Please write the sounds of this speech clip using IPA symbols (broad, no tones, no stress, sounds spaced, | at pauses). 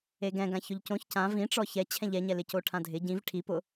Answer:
e ɡ ɛ̃ ɡ ã ç ʊ ʎ c õ ç c ã v ĩ ʈ͡ʂ ɔ ç ɛ t͡ɕʰ ɛ̃ ʎ ɛ ɲ ɛ l ɪ c o ʈʰ ã dʱ ɪ ɟ ĩ v ʈʰ i p ʊ